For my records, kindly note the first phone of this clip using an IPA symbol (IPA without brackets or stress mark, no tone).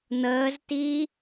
n̪